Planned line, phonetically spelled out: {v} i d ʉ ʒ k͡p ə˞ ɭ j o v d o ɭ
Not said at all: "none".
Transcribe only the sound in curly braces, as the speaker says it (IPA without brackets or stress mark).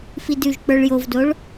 f